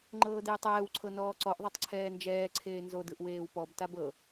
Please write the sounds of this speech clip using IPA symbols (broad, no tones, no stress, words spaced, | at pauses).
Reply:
ŋ͡ǃɤːdeːtˤɛːwǀʰɤ nɔːǀɔʔðˤɯtˤ ǀʰɛːnd͡ʒɛːǀʰeː nzodɯʔ weːwpɔbtab ɤ